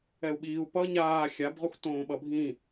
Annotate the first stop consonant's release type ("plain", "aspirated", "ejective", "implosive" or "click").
implosive